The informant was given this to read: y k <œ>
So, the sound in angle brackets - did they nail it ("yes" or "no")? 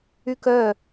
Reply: yes